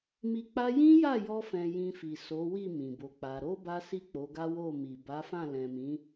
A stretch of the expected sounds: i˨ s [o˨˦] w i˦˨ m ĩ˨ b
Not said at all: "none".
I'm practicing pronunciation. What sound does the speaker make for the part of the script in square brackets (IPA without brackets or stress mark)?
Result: o˨˦